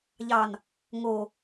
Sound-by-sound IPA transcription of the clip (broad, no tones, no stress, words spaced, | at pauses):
ʎɑn | ŋo